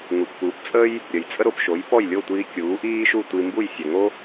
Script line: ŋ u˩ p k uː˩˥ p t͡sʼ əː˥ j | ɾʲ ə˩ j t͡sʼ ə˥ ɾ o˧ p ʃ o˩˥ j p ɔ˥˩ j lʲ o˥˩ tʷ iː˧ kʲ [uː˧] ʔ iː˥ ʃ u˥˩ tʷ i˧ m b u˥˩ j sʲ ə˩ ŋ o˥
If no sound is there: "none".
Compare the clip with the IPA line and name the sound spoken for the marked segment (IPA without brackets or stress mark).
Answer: uː˩˥